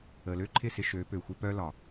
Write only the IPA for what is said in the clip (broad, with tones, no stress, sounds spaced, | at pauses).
ə˨ l ø˦ ǃʰ ɪ˦˨ s ɪ˧ ʃ ø˨˦ p ø˨ xʷ ɪ˧ p œ˦ l ɒ˨